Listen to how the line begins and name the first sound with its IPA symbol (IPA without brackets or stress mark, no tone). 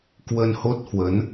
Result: k